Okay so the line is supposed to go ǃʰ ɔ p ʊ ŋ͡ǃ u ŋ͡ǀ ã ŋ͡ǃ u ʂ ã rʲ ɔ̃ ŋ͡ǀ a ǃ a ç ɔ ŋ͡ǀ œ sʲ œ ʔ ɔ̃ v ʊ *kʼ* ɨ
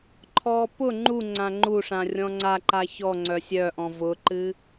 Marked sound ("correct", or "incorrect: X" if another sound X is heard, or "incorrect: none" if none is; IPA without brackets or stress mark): incorrect: ǃ